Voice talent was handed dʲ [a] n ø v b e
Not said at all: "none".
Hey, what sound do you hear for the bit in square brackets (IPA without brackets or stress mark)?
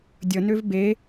ə